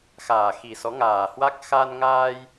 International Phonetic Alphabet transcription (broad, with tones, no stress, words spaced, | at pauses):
xaː˨˩xi˨˩sɔ˨˦ŋaː˨˩ hwa˦˥k̚ xa˧nŋaː˧j